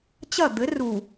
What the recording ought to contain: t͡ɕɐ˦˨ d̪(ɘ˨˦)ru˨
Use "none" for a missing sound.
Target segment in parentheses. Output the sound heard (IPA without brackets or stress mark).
ɘ˨˦